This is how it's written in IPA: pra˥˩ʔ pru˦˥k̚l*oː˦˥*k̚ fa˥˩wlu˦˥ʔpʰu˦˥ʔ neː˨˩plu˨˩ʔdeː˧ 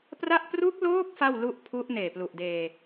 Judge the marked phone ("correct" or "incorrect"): correct